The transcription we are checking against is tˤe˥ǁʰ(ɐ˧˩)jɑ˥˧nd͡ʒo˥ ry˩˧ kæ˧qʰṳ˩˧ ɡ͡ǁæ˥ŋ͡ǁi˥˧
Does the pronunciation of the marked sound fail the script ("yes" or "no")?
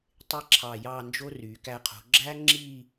yes